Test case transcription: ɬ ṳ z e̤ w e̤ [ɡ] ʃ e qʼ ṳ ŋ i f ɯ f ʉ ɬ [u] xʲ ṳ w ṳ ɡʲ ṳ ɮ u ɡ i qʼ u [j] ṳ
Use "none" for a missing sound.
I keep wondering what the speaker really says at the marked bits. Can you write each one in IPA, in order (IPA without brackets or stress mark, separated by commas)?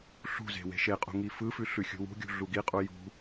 none, ʉ, j